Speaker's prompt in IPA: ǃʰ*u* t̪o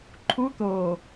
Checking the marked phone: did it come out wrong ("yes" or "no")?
no